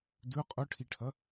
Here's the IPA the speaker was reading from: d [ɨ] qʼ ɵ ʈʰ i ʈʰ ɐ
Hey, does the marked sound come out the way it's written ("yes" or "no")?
no